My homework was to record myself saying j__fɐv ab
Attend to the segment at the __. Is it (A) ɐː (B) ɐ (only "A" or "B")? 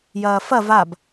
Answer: A